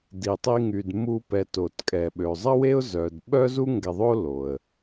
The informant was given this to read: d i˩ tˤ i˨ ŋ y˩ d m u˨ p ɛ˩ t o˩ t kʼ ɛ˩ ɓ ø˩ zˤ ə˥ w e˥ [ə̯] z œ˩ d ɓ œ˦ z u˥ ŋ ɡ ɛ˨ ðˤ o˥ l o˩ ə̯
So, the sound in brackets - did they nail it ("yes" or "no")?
no